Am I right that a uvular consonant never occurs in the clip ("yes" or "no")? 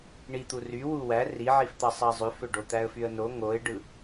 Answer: yes